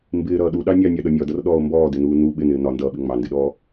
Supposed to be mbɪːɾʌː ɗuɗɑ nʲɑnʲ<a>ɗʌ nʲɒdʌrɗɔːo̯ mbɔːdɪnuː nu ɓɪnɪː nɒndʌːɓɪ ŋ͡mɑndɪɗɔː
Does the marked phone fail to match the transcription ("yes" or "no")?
yes